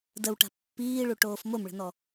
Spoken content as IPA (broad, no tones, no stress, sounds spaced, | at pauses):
d ə w ʈ a̤ pː iː ɭ u ʈ oː f m o m ɭ ə̤ n ɔ